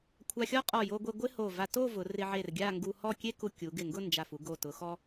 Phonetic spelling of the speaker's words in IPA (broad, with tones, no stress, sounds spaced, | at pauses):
kʷʰ a˧ xʲ ɔ˥ qʼ ɔ˧˩ j o˧ ɡʷ e˧ ɡʷ ɪ˥ h o˧˩ v a˧ t o˥˧ v ʊ˩˧ r ɪ˧ ʕ e˧˩ r ɡʲ a˥˧ ŋ ɡ u˧ h ɔ˥˧ kʲ e˥ k u˧ kʲ u˩˧ ɡ ɪ˧˩ ŋ ɡ ʊ˥˧ n d͡ʒ a˧˩ f u˧ ɡ o˧˩ t ʊ˩˧ x ɔ˧